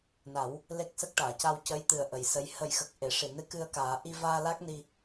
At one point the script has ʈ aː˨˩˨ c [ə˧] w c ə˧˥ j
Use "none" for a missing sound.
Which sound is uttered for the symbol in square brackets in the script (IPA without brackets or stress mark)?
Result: a˧